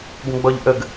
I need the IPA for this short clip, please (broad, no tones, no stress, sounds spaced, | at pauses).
ɡ ə̃ ɡ͡b ɔ ʎ ʔ ə ɡ